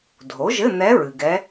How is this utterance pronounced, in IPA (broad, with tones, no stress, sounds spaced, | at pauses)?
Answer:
dʱ o˩˥ ʒ ɘ˧˥˧ n̪ ɛ˧˥ ɹ ɨ˨ ɡ ɛ˧˥